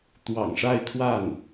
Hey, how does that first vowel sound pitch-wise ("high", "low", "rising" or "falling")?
low